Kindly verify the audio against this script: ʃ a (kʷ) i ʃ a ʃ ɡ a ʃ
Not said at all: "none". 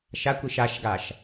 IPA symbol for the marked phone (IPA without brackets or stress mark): kʷ